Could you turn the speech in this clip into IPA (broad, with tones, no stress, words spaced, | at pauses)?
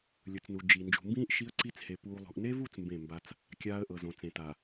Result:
lʲɯ˨t͡snu˨ d͡ʒi˨ nd͡ʒṳ˨mbĩː˦ʔ ʃi˦ə̯ǀi˦t͡she˨ puː˨lˠṳ˨ʔne˦vu˦˨t͡s mbẽ˦˨mba˦t͡s | kʲaː˦ə̯ʔɤ˨zõ˨t͡sẽ˨ ta˨